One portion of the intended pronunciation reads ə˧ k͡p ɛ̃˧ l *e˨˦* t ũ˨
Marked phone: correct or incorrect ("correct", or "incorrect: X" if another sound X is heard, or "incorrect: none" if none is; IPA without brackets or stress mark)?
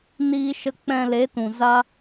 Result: correct